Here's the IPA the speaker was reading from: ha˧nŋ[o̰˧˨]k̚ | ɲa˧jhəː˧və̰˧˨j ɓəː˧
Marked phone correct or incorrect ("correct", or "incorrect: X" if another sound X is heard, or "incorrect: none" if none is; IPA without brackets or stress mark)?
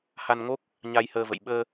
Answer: incorrect: o˦˥